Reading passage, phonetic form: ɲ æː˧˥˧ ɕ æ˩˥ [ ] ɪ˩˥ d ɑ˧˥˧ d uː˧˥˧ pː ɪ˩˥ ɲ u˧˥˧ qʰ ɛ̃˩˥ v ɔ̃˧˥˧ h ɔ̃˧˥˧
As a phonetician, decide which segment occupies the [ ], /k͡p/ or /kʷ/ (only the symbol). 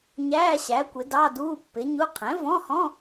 kʷ